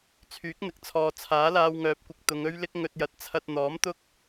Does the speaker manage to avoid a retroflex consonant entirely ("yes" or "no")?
yes